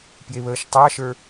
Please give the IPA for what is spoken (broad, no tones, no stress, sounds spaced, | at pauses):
p j e β əː ʃ tˤ ɑ ʃ ə˞